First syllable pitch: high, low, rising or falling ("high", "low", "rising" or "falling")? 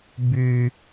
high